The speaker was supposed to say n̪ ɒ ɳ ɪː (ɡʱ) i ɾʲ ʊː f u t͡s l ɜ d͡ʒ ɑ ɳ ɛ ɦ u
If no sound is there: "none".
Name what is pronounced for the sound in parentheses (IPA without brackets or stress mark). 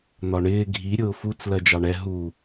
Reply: ɡʱ